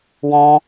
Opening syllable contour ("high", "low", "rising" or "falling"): high